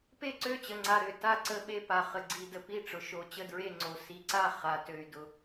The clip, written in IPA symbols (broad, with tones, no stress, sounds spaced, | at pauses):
p e˥˩ ǀ ø˥˩ t͡ɕ ə˨ ŋ͡ǀ a˨ ɾ ø˨ t a˥˩ ǀ ə˥˩ ɓ e˥˩ p a˨ χ ə˨ ɡ͡ǀ i˨ d ə˨ p i˥˩ ʈ͡ʂ ʊ˨ ʃ o˨ t͡ɕ ə˥˩ d ɹ e˥˩ ŋ͡ǀ o˨ s i˨ ǀ a˥˩ χ a˨ t ø˨ y̯ d ʊ˨